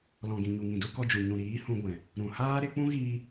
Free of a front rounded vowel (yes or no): yes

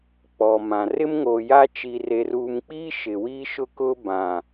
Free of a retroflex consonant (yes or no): yes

